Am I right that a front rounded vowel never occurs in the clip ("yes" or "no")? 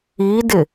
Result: yes